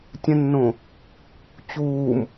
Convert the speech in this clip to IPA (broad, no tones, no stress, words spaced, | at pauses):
tʲə̃nːõ | t͡ɕuːm